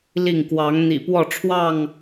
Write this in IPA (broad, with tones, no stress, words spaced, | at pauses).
li˥˨ŋ kwɑ˨˦ŋ n̪ḭ˨˩pwɔ˥˨ʈ͡ʂʰwɑ˥˨ŋ